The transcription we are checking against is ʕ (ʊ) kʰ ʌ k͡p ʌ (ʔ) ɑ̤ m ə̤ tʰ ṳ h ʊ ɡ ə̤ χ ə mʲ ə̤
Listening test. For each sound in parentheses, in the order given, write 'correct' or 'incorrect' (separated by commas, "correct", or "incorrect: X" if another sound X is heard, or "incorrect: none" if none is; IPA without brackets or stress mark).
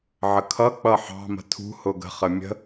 incorrect: ə, incorrect: ħ